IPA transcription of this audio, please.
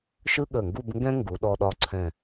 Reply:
ʃ ɯ˥ ɠ ə˧˩ ŋ ɡ u˥˧ b ŋ ɡ ɛ̃˥ ŋ ɡ u˩˧ ɗ ɔ˧ ɗ ɒ˧ ǀʰ ɛ̃˧˩

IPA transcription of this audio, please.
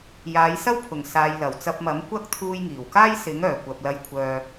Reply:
j aː˨˧ j s ɐ˥ w pʰ ʊ˨˩ ŋ s aː˨ j l ɐ˨˩ w t͡s ɐ˧ p̚ m ɐ˨˥ m kʷ ɐ˥ k̚ t̪ʰ uː˧ j ŋ iː˨˩ w k aː˥ j s ɪ˨˥ ŋ œː˨˩ kʷ ɐ˨ p̚ l ɐ˧ j kʷʰ œː˧

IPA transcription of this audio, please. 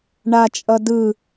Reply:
ɳ a t͡ʃʼ ʌ d ɯ

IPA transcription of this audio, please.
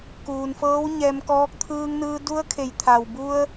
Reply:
k uː˩ n f ɤː˧˥ w ɲ ɛː˧ m k ɔː˧˥ k̚ t̪ʰ ɯː˧ ŋ n ɯː˧ d u˧˥ ə̯ kʰ e˩˧ j t̪ʰ a˩ w b u˧ ə̯

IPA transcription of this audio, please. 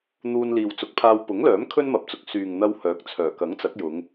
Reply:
n̪ uː˧ n l iː˨ w t͡s ʊ˨˥ k̚ pʰ aː˧ w p ʊ˨˥ ŋ l œː˨˥ m kʰ ɵ˥ n m ɐ˨ p̚ t͡s ʊ˨ k̚ s yː˨ ŋ n̪ ɐ˧ w h œː˨˥ k̚ t͡sʰ œː˨˩ k ɐ˨˥ ŋ t͡s ɐ˨˥ k̚ j ʊ˨˧ ŋ

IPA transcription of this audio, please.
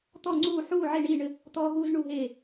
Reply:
t̪ ɔ˥˩ ŋ͡ǀ uː˥˩ ħ uː˥˩ ʕ e˥˩ ɳ iː˥˩ ɳ ɘ˦ | t̪ ɔː˦ ɦ uː˦ z ɳ u˥˩ ɦ eː˥˩

